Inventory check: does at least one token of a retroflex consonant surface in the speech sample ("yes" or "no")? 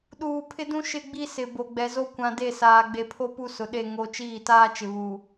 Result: no